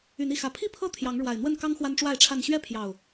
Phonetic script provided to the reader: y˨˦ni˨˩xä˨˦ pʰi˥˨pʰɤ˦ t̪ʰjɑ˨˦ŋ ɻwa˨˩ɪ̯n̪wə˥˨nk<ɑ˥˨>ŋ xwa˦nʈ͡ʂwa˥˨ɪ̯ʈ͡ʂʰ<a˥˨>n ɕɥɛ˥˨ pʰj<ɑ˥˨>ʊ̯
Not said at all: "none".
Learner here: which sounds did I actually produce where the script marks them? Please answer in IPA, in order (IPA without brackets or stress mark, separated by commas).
ɑ˦, a˥˨, ɑ˨˩